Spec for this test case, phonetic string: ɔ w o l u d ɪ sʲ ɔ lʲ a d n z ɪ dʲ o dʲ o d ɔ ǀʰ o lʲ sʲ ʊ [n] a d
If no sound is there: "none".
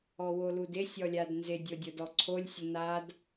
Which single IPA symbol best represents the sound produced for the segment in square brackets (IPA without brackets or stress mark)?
n